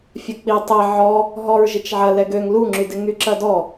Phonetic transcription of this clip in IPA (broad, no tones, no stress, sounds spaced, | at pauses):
fʲ ɐ k͡p i tˤ ɛ ʕ ɔ | ɦ ɔ ɹ ʒ ɪ t͡ʃ ʕ ɐ l ɛ ɡ ø ŋ l u ŋ͡ǁ y d ɪ ŋ y ǁ ɐ d ɔ